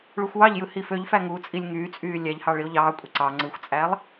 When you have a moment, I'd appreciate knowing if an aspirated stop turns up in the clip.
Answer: no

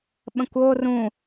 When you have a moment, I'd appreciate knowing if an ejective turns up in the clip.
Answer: no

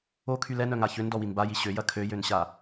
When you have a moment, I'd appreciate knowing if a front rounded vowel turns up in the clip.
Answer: yes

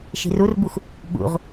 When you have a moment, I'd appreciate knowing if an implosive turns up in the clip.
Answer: yes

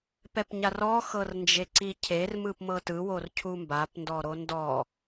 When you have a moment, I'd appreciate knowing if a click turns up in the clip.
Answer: yes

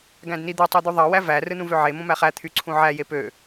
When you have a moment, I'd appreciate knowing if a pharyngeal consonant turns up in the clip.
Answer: yes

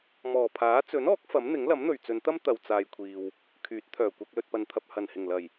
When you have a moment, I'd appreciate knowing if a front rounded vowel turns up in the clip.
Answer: yes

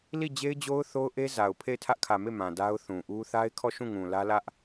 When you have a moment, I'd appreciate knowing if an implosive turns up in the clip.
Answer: no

